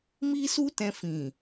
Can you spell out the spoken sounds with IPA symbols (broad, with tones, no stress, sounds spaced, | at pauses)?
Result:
m i˦ s u˦ t ɛ̃˧ f ĩ˨